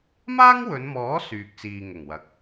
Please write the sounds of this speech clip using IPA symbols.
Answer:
m aː˥ ŋ w ɵ˨˧ n m ɔː˨˥ s yː˨ k̚ t͡s iː˨ ŋ ʊ˨˩ ŋ w ɐ˨˥ k̚

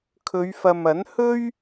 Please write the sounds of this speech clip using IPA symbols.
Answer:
kʰ ɵ˨˧ ɥ f ɐ˨ m ɐ˨˥ n h ɵ˥ ɥ

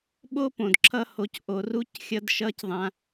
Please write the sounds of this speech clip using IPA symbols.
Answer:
ɓ o˥ p õ˩ d ǁʰ ʌ˧ h o˩ c ʔ o˩˧ r u˧˥ c xʲ ʌ˧ d ʃ ʌ˧˥ c ðˤ ã˧

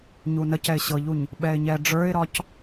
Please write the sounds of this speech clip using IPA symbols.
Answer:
ɲ u n ə c ɛ ɪ̯ ɕ ɤ ʎ u ɲ | ɓ ɛ ɪ̯ ɲ ɛ ɖ͡ʐ ə˞ ɪ̯ ɾ ɒ c

